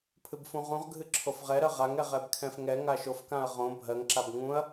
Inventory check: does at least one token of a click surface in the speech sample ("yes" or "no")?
yes